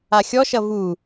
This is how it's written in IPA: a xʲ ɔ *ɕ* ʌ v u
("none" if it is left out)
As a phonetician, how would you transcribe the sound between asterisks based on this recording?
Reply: ʃ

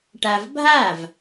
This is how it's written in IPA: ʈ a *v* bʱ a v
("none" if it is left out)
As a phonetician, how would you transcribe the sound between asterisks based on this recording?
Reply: v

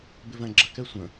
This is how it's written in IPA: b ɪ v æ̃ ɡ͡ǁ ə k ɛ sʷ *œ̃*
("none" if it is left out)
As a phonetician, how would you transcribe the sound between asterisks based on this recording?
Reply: ə̃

